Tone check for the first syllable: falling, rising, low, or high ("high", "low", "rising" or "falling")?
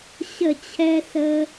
falling